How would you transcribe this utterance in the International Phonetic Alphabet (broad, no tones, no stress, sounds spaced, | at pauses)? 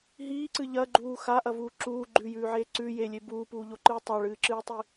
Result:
ɦ iː ǀ ɨ ʎ ɐ ɡ͡ǃ uː x a ʔ ɐ v uː ǁ uː ɡ͡ǃ ʉ j ʉː ʕ eː ǀ ʉ j e lʲ e b uː p uː ʎ o ǃ ɨː tˤ a ɭ ɨː ǁ ɨː tˤ i